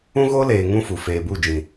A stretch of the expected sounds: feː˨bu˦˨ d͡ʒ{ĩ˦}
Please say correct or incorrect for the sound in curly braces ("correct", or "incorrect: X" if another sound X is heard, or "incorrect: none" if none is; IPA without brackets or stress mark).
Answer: incorrect: ĩ˨